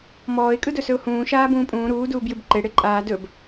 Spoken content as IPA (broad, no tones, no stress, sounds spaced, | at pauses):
m ɔː ɪ̯ kʼ ɯ d ɵ s ɵ ʊ̯ h ũː ʃ aː b ũː pʼ ũː ɾ uː d uː b j ɨ b ǃ e ɽ e ǃʼ aː d ɵ b